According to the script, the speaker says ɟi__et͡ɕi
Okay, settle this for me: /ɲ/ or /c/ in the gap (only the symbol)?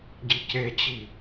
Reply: c